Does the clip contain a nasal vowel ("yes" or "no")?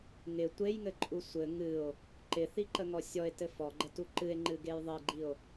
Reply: no